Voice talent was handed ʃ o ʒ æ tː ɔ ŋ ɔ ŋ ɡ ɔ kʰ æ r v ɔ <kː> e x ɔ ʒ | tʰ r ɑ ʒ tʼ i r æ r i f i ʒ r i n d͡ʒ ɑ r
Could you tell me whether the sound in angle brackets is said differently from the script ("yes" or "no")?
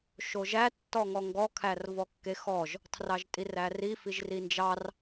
no